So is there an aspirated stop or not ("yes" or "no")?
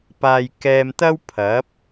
yes